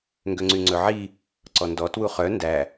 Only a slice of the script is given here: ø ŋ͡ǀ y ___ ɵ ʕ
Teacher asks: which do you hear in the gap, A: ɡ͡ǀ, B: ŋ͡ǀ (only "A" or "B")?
B